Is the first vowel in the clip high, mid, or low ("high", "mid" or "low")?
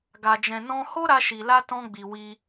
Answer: low